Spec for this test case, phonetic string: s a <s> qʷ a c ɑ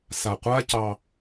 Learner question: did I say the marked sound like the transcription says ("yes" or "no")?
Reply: no